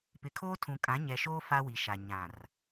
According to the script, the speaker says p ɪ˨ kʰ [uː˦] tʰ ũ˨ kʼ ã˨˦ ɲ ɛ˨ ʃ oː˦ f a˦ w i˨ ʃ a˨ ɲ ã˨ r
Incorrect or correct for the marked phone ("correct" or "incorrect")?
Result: incorrect